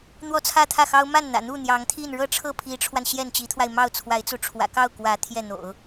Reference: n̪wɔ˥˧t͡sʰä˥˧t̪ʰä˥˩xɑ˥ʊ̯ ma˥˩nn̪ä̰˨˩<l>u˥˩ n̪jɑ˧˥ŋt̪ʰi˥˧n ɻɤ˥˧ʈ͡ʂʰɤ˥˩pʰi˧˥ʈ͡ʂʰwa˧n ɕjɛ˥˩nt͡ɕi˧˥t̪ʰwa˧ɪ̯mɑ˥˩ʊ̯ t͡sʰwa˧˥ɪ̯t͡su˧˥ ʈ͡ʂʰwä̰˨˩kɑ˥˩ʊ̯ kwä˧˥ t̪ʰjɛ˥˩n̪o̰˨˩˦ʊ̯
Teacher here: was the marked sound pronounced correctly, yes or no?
no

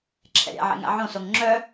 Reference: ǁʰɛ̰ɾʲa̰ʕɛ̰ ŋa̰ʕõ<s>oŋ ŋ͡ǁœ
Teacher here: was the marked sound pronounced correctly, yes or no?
yes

